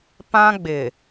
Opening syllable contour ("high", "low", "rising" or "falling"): high